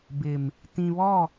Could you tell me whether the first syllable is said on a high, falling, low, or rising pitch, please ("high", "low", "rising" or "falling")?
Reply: low